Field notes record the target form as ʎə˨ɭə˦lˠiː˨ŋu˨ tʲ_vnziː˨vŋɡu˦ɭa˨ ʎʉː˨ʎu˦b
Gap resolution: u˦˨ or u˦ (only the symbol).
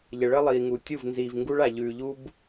u˦˨